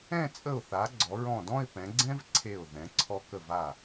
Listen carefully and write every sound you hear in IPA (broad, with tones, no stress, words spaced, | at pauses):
ɛ̃˥˧ t͡sʼə˧˩ʊ̯θa˩˧ ɡ͡ǀɔ˩˧ ɹɔ̃˧˩dɔ̃˥˧ɪ̯ pɛ̃˩˧ɡ͡ǀɛ̃˥v ǀʰe˧˩ʊ̯ ðɛ̃˩˧ǀʰɔ˧ kə˧˩va˧˩